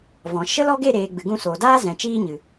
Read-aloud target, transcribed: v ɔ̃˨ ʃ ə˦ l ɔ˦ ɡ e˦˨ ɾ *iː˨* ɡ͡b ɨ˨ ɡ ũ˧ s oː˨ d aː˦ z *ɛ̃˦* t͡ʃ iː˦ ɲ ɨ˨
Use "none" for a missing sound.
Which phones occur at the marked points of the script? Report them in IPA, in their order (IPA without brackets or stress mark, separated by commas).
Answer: eː˨, ɛ̃˨